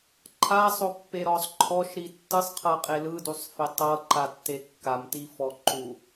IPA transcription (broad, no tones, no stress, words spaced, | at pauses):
ǃʰasˤopːeɾɔsˤ ǃʰɔʃɾi tːɯsˤqʰɤqʼe lɯdusˤfe tˤɤǃatːe kːamtifɔ ǃu